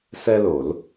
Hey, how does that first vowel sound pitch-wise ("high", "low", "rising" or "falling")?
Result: high